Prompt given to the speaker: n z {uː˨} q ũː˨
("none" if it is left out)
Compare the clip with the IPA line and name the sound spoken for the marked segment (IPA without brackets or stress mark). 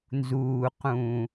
uː˨